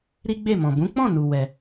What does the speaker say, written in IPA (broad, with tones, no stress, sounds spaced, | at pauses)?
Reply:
ɾ i˦ ɡ͡b e˦˨ m ɔ̃˨ b ũ˨˦ k͡p ɔ̃˦˨ n u˧ w ɛ˧